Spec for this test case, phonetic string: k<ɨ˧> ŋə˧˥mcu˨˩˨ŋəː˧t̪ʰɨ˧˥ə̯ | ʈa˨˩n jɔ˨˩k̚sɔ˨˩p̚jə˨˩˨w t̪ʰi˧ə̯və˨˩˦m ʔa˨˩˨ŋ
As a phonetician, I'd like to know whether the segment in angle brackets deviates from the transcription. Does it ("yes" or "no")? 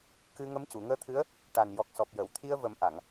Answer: no